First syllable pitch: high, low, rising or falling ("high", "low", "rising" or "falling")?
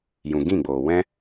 low